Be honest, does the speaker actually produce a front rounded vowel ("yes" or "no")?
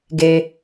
no